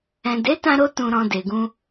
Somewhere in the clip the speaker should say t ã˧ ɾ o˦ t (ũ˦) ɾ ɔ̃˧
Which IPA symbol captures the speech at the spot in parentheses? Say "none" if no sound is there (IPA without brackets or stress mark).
ũ˧